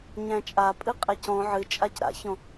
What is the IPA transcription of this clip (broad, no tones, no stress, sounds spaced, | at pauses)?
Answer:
ɲ æ̃ t͡ʃʼ a pʼ ɨ qʼ ɛ c ɔ̃ ʕ ɨ t͡ʃʼ a c ɾ a̰ ç ɔ̃